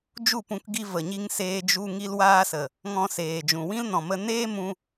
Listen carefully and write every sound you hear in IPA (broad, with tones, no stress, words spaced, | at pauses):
d͡ʒu˦˨pũ˧kɡi˧ və˨ɲi˧ŋ seː˧d͡ʒu˧ ŋi˧lwaː˧sə˨ | ŋɔ̃˧seː˨d͡ʒũ˨ wĩ˦lnɔ̃˨mə˧ neː˦mũ˧